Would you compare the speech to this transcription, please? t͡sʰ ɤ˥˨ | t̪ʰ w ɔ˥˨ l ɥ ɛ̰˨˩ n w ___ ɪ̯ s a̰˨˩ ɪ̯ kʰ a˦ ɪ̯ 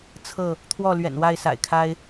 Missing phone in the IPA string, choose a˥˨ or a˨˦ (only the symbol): a˥˨